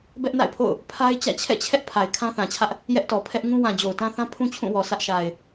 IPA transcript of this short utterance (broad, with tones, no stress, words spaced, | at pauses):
bɛ˦ʔna̰˦˨ɪ̯pʰo̰˦˨ʊ̯ | pʰa˦ɪ̯t͡ɕä̰˦˨ t͡ɕʰɛ̰˦˨ t͡ɕʰɛ˦ʔ pʰa˨ɪ̯kʰã˦θã˨t͡ɕʰä˦ʔ | jɛ˦ʔtɔ˨ pʰɛ˦ʔŋũ˦ wã˨ d͡ʑo˨ʊ̯tã˦θã˦ pʰũ˦t͡ɕʰũ˦˨wɔ˨ sä˦ʔʃa˨ɪ̯